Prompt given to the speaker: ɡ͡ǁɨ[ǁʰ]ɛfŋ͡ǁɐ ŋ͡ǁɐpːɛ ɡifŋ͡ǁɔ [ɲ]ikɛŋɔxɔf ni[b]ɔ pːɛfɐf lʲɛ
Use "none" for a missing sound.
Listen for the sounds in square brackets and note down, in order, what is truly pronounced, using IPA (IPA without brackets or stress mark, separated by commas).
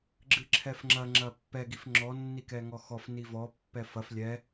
ǁʰ, nː, v